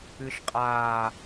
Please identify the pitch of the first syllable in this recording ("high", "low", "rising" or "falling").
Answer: low